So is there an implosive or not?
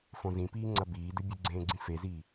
no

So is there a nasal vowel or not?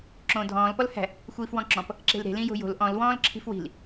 yes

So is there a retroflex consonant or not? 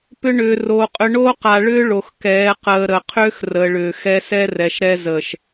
yes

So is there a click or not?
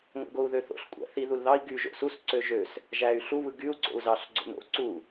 yes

